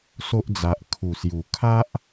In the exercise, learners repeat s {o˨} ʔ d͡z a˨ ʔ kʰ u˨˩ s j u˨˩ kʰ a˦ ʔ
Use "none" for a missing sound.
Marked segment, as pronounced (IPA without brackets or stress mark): o˦